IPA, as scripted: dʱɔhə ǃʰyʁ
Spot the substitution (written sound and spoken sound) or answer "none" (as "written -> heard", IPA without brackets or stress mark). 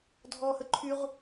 none